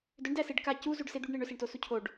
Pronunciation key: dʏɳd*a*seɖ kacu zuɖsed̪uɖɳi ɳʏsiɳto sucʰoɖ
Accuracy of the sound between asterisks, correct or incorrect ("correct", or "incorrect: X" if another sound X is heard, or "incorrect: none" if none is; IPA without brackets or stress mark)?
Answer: incorrect: æ